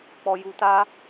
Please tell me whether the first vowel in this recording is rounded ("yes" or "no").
yes